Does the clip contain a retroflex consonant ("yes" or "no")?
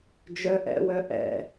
no